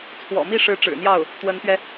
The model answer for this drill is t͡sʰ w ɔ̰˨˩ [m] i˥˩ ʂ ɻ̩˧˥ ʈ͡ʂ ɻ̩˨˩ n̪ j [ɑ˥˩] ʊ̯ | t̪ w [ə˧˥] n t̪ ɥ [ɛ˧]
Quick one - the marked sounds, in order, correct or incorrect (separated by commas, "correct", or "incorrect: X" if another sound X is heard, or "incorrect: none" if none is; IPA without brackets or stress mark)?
correct, correct, correct, correct